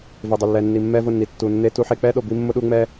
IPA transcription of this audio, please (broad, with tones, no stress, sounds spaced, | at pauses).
v e˨ dˤ ɪ˨ lː ɛ˨ nː i˨ mː ɛ˦ v ʊ˦˨ nː i˨ tː u˨ nː e˦ t u˦ ħ e˦ k͡p ɛ˦ ɗ o˨ b i˦ mː ʊ˦ ɗ u˦ ŋ͡m ɛ˦